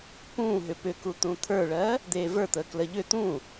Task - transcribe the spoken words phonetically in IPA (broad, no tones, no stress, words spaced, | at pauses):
pũːɦʏ pʏku t̪ũt̪ʰə˞ɭɜː | d̪eːvə˞t̪əː kləʎʏ t̪ũː